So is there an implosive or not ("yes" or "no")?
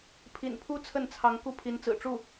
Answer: no